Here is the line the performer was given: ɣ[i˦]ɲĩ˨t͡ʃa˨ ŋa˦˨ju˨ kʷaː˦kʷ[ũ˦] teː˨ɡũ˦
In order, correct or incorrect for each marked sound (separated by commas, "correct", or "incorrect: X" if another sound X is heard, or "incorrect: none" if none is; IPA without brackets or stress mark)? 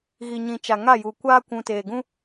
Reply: incorrect: i˨, incorrect: ũ˨